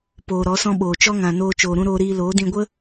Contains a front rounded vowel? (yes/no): no